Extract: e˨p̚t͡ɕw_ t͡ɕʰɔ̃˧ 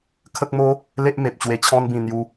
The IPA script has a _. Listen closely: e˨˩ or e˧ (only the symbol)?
e˧